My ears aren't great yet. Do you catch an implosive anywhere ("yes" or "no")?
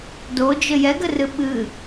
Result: yes